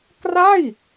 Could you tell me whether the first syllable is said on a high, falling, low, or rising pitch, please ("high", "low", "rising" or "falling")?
falling